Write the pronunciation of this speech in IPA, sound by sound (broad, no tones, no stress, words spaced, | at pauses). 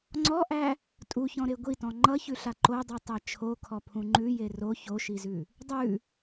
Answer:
ŋ͡ǀɔʔæ | tʼuçɔ̃ɾe ɡʷitɔ̃ ŋ͡ǃʌçʉɬa ǃodˤutˤæ t͡ʃʰokʰɔpʰũ ŋ͡ǃʉje ro çoʃizʉ | dˤʉ